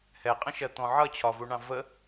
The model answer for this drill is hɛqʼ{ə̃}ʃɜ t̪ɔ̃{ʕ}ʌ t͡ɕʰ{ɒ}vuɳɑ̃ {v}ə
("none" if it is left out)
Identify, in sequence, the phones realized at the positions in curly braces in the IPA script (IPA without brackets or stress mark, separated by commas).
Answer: ə̃, ʕ, ɒ, v